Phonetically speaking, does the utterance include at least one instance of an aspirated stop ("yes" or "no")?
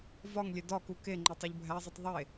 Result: no